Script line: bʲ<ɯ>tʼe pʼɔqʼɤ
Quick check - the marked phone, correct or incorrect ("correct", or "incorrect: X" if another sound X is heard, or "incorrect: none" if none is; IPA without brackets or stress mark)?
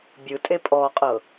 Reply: correct